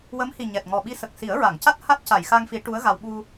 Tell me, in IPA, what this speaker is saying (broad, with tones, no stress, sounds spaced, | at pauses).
w ə˧˥ m h i˨˩ ɲ ɛ˨˩ t̚ ŋ ɔ˨˩ ɓ i˧˥ s ə˨˩ k̚ s i˨˩˦ ə̯ ɹ a˨˩˨ ŋ c a˦˥ t̚ h a˦˥ t̚ c a˨˩˨ j x a˧ ŋ f i˨˩˦ ʈ u˧˥ ə̯ ɣ a˧ w ɓ u˧